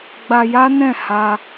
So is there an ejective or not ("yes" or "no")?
no